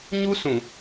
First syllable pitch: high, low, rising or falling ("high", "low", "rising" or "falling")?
high